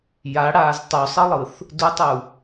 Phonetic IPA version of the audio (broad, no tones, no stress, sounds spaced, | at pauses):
j a ɽ aː z tˤ u sˤ ɯ lˠ ɯ θ | d u tˤ u